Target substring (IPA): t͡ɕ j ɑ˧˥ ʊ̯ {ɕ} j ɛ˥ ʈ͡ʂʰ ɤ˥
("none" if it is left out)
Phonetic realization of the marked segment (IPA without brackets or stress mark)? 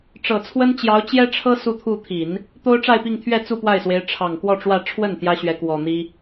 t͡ɕ